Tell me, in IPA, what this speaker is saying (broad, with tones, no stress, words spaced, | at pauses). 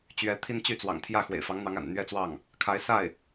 t͡ɕɥɛ˧˥t̪ʰi˥n t͡ɕy˥˩t͡swɑ̰˨˩ŋt̪ʰjä˥˩ xwḛ˨˩ɪ̯fɑ˧˥ŋn̪ɑ˧˥ŋa̰˨˩n n̪ɥɛ˥˧t͡swɑ˥˩ŋ | kʰa˧˥ɪ̯sa˥˩ɪ̯